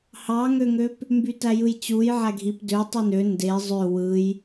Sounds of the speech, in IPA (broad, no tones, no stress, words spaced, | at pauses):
hɑŋøŋøp | mbytæjɯjt͡ɕuj ʕæɡʱip dø tˤynø nde zˤø wɯj